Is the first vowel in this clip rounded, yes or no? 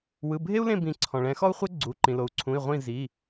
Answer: no